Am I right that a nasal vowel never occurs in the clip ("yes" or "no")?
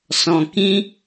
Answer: no